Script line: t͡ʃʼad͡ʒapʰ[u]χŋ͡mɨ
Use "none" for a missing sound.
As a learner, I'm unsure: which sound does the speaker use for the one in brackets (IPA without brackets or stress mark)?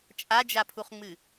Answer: u